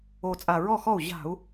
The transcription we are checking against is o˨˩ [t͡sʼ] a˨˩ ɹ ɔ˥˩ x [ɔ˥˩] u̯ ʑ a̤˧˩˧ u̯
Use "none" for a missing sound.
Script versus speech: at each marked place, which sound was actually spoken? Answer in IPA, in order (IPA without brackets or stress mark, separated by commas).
t͡sʼ, ɔ˥˩